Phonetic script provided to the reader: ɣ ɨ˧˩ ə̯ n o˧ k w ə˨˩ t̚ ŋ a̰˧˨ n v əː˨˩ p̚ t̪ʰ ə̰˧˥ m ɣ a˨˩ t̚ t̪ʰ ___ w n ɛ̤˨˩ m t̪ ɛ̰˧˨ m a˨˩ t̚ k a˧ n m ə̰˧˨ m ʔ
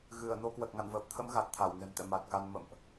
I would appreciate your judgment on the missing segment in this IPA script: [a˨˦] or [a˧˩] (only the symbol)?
a˧˩